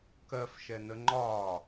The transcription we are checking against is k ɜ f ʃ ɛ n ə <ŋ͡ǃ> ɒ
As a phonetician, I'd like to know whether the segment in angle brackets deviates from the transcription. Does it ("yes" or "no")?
no